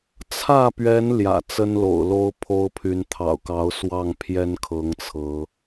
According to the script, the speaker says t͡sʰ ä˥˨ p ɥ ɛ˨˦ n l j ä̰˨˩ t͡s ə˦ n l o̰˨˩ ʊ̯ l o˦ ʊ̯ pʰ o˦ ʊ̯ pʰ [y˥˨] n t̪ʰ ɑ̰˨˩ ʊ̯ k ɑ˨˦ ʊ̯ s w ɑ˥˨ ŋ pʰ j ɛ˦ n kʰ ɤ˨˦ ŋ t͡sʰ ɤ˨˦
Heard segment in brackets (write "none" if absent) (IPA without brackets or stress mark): y˨˦